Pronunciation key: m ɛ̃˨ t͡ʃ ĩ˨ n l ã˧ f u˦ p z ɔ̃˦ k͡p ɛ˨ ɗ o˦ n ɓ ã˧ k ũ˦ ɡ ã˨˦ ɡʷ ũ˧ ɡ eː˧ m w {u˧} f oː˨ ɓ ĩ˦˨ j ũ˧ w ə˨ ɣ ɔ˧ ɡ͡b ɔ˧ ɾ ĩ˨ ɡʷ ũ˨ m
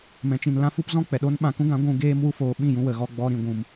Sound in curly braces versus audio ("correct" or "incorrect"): correct